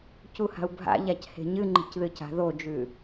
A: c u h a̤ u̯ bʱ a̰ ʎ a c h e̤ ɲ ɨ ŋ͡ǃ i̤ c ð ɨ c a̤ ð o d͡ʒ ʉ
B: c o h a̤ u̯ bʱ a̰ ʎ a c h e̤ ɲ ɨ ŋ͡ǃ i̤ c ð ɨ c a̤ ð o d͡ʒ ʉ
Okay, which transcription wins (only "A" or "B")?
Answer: A